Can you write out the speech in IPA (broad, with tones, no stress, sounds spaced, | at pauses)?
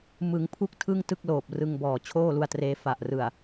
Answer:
m ɯ˩˦ ŋ pʰ u˥˩ k̚ tʰ ɯ˥˩ ŋ t ɯ˥˩ k̚ l oː˨˩ p̚ r ɯ˧ ŋ b ɔː˨˩ t͡ɕʰ oː˥˩ l u˧ a̯ t r eː˦˥ f a˨˩ ʔ r ɯ˨˩ a̯